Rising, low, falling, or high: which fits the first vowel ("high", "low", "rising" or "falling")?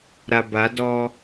low